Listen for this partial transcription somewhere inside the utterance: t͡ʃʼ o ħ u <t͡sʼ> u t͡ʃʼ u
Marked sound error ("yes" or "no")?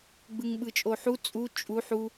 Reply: no